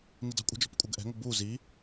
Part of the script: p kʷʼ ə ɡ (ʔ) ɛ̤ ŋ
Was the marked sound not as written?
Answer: no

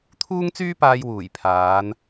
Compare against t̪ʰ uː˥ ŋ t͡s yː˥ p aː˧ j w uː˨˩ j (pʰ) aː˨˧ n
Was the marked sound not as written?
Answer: no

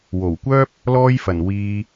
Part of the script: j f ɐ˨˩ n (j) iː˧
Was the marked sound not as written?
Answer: yes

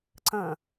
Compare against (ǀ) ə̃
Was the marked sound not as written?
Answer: no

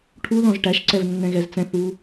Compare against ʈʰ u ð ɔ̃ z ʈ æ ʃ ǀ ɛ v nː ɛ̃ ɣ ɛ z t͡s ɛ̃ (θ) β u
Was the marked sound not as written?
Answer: no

